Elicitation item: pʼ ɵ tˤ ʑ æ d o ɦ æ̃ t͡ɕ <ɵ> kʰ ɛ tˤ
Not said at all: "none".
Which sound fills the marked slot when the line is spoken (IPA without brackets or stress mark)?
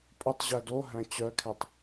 œ